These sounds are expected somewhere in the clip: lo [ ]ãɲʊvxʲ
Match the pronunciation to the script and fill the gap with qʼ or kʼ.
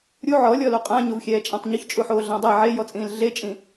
qʼ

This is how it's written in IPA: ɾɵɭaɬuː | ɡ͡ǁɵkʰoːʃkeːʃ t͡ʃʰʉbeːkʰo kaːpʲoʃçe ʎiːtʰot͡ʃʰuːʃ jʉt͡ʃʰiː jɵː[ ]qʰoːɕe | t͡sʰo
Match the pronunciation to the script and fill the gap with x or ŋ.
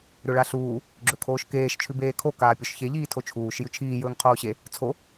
ŋ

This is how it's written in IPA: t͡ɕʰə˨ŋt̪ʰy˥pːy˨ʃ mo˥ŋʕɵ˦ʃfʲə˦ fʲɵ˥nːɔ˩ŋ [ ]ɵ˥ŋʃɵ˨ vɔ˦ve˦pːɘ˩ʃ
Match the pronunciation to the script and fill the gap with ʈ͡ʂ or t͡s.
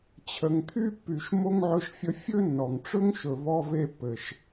ʈ͡ʂ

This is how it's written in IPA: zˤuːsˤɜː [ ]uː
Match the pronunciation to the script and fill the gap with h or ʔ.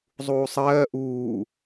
ʔ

